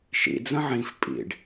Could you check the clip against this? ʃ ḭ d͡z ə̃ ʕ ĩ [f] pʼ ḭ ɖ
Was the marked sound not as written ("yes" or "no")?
no